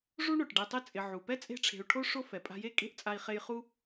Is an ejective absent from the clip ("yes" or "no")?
no